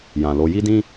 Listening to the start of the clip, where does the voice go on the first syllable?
low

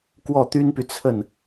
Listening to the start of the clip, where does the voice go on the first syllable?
falling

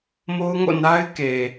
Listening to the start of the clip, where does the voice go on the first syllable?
high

